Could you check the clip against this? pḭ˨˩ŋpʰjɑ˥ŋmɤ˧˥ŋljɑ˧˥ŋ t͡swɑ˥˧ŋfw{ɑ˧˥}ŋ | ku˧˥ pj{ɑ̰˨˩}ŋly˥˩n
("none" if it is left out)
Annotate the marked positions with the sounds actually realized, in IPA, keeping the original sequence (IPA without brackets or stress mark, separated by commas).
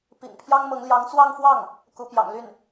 ɑ˥˩, ɑ̰˨˩